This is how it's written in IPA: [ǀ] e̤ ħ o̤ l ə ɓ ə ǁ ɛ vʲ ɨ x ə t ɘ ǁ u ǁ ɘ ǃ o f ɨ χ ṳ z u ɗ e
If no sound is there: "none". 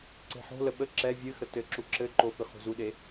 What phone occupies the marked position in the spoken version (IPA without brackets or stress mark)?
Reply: ǀ